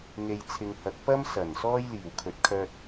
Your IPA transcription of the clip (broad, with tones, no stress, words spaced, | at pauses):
ŋe˨jt͡sʰɪ˨ŋhɐ˨˥k̚ pɐ˥msɐ˨˩n sɔː˥j liː˨˩wkʰɵ˨t̚ kʰœː˧t̚